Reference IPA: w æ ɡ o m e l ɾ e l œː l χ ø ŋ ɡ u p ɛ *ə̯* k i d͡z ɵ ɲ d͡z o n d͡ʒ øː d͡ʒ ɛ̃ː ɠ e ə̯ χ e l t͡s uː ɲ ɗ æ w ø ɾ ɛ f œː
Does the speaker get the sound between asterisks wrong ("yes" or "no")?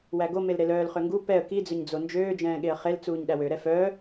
no